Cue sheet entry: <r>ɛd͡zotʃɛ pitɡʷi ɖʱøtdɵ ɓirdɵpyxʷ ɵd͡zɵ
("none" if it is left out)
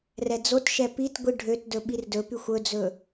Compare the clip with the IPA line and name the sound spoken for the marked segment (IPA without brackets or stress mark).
r